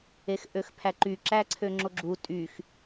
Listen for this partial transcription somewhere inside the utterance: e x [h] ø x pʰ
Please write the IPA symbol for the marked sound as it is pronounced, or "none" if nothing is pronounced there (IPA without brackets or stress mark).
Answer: ʔ